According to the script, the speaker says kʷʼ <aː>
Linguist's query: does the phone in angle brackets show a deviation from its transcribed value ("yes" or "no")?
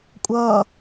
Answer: yes